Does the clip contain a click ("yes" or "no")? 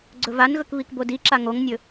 yes